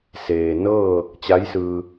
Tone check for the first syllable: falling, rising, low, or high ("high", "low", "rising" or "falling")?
low